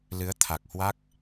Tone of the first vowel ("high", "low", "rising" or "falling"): rising